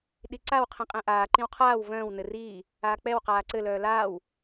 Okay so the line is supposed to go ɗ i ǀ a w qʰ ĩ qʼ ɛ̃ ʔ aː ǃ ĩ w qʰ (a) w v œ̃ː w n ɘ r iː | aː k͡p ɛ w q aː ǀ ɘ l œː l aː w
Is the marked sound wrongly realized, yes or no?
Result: yes